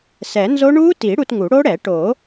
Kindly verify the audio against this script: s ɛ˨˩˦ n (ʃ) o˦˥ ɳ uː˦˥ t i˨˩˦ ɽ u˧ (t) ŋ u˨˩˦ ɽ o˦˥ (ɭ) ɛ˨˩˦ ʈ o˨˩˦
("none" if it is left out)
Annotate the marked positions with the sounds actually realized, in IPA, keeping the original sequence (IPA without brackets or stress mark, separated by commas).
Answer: z, t, ɽ